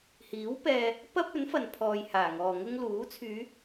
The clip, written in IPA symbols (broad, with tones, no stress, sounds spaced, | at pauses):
h iː˨˥ w p ɛː˧ | p ɐ˥ p̚ ɵ˨˥ n f ɐ˨ n pʰ ɔː˨ j h aː˨˩ ŋ ɔː˨ ŋ ʊ˥ ŋ l uː˨˥ t͡sʰ yː˨˧